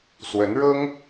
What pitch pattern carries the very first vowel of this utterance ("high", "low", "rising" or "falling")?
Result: rising